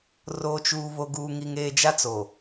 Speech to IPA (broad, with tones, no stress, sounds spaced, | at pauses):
r o˨ t͡ʃ uː˨ β o˨ ɡ uː˨ ŋ i˨ ŋ eː˨ d͡ʒ a˦ t͡s o˨